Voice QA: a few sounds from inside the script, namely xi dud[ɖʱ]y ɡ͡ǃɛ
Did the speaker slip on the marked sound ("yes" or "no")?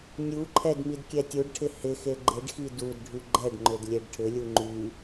no